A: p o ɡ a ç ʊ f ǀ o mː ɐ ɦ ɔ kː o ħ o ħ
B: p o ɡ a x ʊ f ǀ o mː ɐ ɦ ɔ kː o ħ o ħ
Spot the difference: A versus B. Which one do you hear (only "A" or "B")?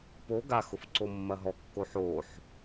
B